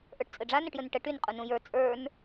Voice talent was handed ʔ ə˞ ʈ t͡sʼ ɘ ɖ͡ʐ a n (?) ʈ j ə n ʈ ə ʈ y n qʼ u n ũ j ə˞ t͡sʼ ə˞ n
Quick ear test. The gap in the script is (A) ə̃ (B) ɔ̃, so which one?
A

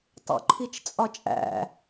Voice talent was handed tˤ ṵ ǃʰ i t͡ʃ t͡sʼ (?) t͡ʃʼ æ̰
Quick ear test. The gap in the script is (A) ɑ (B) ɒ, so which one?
B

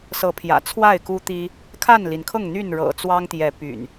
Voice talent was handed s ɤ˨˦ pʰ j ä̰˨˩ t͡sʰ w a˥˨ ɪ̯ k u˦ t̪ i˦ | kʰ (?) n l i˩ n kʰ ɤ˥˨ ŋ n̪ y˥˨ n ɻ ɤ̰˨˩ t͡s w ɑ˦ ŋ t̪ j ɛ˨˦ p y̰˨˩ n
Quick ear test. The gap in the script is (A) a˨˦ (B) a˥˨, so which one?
B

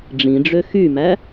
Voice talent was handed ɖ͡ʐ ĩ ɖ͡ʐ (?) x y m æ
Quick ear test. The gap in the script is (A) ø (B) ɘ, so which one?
A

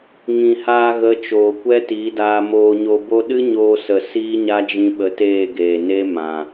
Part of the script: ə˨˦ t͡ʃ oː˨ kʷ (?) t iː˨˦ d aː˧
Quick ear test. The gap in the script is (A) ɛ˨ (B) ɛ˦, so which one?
B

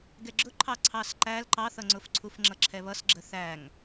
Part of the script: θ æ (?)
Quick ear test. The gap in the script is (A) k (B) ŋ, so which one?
B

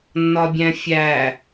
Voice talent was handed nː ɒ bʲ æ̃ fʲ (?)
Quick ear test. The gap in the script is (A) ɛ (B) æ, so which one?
B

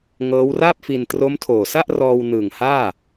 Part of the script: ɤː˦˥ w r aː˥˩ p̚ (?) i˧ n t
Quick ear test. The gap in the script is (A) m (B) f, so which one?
B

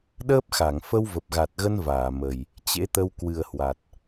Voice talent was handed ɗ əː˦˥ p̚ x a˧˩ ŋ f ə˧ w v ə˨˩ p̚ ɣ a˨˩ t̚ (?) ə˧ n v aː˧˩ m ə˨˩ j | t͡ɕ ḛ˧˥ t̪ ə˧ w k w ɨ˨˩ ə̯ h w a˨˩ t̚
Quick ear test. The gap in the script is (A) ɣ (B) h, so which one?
A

